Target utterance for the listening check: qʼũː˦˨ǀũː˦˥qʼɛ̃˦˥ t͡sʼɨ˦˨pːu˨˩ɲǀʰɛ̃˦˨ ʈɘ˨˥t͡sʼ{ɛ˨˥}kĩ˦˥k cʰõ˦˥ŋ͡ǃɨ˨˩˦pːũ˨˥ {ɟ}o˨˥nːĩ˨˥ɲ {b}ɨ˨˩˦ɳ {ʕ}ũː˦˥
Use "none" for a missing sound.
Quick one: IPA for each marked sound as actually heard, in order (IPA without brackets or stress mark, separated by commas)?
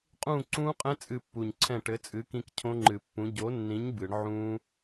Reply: ɨ˨˥, ɟ, b, ʕ